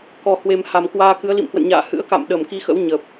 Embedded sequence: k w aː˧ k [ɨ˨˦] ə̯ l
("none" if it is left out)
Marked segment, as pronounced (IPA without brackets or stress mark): ɨ˨˦